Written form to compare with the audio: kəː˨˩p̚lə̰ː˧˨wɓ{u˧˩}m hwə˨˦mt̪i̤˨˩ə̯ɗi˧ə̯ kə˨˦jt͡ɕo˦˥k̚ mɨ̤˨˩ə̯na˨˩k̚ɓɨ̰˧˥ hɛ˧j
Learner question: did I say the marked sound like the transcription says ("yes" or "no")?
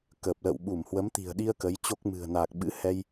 yes